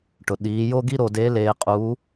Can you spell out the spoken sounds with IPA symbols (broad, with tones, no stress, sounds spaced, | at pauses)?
ʈ ʊ˩ ɗ iː˩˧ j o˥ ɡ i˥ ɾ o˧ d e˧˥ l eː˧ qʼ uː˧˥